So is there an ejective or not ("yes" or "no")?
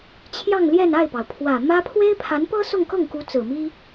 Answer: no